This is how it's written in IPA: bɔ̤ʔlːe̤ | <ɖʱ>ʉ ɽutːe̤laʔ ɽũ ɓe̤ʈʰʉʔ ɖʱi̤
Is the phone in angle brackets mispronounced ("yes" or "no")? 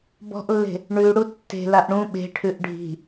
yes